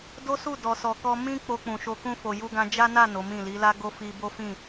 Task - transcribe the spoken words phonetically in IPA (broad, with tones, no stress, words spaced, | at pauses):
do˦su˦˨ dɔ˨sɔ˨kɔ˧ mĩ˦ k͡po˧k͡pũ˨ʃo˧ kũ˧fo˨ju˧ ɡã˧d͡ʒa˦na˦˨ no˨˦mĩ˦˨ li˨˦la˦ ɡo˦fi˧bo˦fĩ˦˨